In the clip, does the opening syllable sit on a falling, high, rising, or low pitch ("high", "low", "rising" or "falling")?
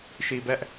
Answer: low